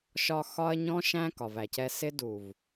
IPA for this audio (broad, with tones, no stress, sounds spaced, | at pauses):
ʃ ɒ˧ x ɒ˧ ɐ̯ ɲ ɔ̃˧ ʃ æ̃˧ k ɒ˨ v æ˨ c ɛ˧ s ɪ˧ d u˨ v